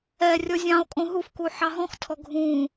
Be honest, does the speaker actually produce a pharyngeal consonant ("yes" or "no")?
yes